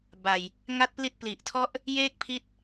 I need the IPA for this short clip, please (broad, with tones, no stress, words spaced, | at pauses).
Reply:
ba˨˩j | ŋa˦˥t̚pli˦˥t̚ pli˨˩ʔtʰɔ˦˥ʔ | jeː˥˩k̚pʰi˦˥t̚